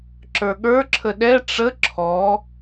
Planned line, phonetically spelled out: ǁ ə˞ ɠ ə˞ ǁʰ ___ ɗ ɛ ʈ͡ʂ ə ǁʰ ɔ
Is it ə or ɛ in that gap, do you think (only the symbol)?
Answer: ə